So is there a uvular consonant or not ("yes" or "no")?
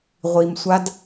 yes